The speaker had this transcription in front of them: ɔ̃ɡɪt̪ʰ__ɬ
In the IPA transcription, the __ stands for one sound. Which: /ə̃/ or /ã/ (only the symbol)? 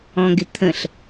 ə̃